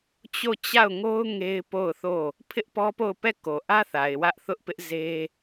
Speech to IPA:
t͡ɕo˦˨t͡ɕa˦˨ʊ̯ŋo˦ʊ̯ ŋe˦ɪ̯po˦˨ʊ̯θo˦˨ | pʰɪ˦ʔpɔ˦po˦˨ʊ̯pɛ˦˨ ko˨ʔä˦θa˨ɪ̯ wä˦ʔθʊ˦ʔpɪ˦ʔ ze˦

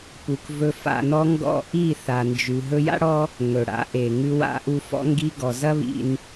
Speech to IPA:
pu˨kvɵ˧ fa̰˨nɔ˧ ŋɡɔ̰˦˨ ʔi˦˨θa˨nd͡ʒʉ˨ ɦɵ˧ja̰˦ɽɔ˦ | ŋɵ˨ɽa̰˨˦ʔe˨ ŋʉ˧wa̰˧ʔu˧ fɔ̰˧ŋɡi˧ ɡɔ˨zɐ˦βḭ˧n

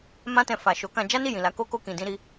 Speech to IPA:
mã˦tɛ̃˧fa˨ʃo˨˦ kã˧d͡ʒa˦ni˦˨ jĩ˨la˨˦ko˦ko˦ kĩ˧dĩ˦ɾi˦

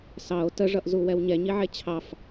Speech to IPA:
sɑo̯ təʐʌʔzuwɛw ɲɛɲiʕe t͡ɕʰɑf

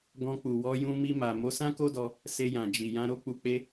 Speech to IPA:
ɡɔ̃˧k͡pu˨wɔ˧ jũ˧mi˧ma˨ mo˨˦sã˦ko˦dɔ˧ | se˧jã˨ d͡ʒi˨ jã˧ɾo˦k͡pu˧k͡pe˦

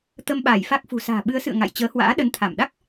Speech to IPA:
t̪ə˧mɓaː˧˩jfa˦˥k̚ fṳ˨˩sa̤ː˨˩ɓɨ˨˦ə̯sɨ̰˧˨ə̯ ŋa̰˧˨jt͡ɕəː˨˦hwa̰ː˧˥ ɗə˨˦nt̪ʰa˧˩m ɗa˦˥k̚

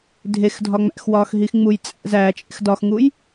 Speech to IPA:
dʱexdʱɒ ŋ͡mæ̰xwɒːxɦix ŋ͡mujt͡sʼæ̰ zæː t͡ʃʼḛxdɒxŋuj

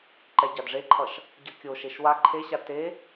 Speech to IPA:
ǃɛɟadʐeǃʰʌʃ | ɟʌkʲoʃeʃ wa ǃʰeɕa te

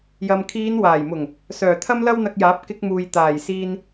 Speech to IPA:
jɐ˨mkʰiː˨˧n waː˨˩jmʊ˨˩ŋ | sœː˨˩ t̪ʰɐ˥mlɐ˥wn̪ɐ˧k̚jaː˨˥p̚ kɪ˧k̚muː˨j t̪aː˨˩jsiː˧n

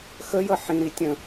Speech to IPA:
xəjʌ ħĩɾi tʲə̃

